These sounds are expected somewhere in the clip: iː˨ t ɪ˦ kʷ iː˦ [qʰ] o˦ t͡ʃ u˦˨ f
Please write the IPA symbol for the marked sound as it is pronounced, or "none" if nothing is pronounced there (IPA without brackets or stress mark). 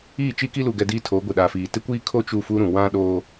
kʰ